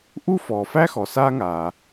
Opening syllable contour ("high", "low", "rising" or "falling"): high